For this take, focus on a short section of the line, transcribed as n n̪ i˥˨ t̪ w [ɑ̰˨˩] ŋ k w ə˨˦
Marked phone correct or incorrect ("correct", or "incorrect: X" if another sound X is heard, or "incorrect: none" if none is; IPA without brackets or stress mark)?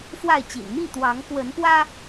incorrect: ɑ˨˦